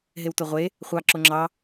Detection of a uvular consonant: present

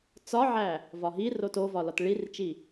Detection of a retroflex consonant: present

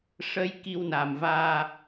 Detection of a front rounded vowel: absent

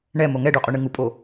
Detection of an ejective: present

